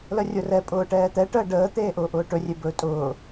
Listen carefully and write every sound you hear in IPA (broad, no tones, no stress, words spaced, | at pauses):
lərʲʊrɛ pʼʊːʈɛːt̪ɛ ʈəːɖəː t̪eːʔʊːʔʊːʈɵ rʲebɵ tʼʊː